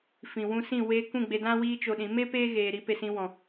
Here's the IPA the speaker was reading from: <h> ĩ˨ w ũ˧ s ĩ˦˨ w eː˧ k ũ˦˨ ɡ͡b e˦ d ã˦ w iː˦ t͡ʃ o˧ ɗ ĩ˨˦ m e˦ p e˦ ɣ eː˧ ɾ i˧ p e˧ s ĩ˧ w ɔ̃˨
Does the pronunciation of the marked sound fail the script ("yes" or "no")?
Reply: yes